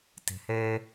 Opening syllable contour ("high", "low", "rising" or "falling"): low